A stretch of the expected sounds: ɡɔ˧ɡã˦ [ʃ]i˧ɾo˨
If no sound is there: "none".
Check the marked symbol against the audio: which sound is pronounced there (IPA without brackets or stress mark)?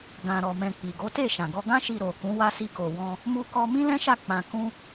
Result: ʃ